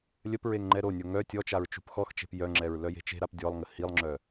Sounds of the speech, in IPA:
lʲəpɹeŋ ŋ͡ǃɛɾonʲo ŋœ tʲɔt͡ʃaɹ t͡ʃṳpxɔxt͡ʃe̤p jœŋ͡ǁɛɹ lœje̤t͡ʃe̤ɾap dʲɔlˠŋə hilˠŋ͡ǁœ

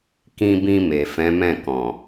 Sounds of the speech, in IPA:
kĩ˧bĩ˧ me˨fɛ̃˨˦mɛ̃˦˨kɔ̃˨

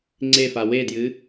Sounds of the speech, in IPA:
ŋ͡ǀefa wedjɨ

